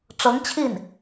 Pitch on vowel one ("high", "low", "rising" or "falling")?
rising